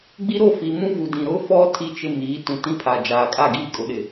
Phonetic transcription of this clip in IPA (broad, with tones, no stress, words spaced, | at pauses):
ɡ͡bi˦ɾo˦˨fiː˨ mũ˦vu˨dĩ˨ ɾʊ˦fɔ˦ tʰi˦t͡ʃɪ˦miː˨˦ tũ˨tĩ˦pʰaː˨ d͡ʒaː˨kʼa˦˨ ɡiː˦˨kʼʊ˨˦ɗɪ˨